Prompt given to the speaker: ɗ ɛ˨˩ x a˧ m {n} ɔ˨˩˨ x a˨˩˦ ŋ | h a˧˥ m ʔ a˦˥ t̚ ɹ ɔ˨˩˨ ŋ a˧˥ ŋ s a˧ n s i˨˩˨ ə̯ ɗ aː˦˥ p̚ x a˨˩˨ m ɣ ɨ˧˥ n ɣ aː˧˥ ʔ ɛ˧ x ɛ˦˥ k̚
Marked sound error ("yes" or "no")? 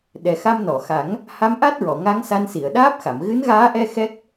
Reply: no